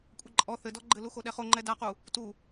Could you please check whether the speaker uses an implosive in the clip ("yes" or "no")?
yes